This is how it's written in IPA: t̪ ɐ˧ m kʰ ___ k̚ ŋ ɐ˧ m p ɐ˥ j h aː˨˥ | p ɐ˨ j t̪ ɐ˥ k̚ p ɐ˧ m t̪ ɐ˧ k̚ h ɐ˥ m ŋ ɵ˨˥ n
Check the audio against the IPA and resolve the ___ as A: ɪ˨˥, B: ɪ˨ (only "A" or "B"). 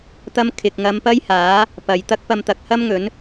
B